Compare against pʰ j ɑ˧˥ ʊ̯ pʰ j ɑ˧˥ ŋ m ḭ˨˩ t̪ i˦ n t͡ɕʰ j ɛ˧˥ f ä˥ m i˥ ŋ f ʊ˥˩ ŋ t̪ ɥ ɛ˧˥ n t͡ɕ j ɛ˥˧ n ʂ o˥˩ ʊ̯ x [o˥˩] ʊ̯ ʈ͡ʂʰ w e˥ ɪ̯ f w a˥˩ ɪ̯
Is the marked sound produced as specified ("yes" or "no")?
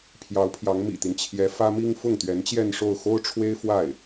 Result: no